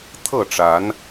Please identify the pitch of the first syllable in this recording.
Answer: falling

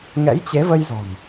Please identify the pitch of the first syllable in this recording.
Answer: rising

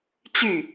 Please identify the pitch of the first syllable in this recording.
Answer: falling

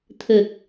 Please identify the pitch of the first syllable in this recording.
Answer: low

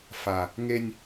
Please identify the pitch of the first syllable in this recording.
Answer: low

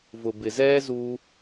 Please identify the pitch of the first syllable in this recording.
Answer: low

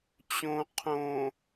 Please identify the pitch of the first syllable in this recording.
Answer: low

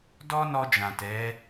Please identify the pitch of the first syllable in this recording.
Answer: high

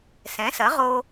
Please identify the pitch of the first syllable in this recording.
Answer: rising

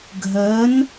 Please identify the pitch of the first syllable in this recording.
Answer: rising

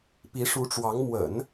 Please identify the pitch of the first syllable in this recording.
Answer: rising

